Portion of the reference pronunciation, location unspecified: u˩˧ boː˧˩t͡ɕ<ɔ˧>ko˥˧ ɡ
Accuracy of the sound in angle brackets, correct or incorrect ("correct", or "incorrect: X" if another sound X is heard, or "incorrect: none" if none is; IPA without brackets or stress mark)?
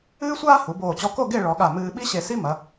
correct